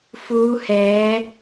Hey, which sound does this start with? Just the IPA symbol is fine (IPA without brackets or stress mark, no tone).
f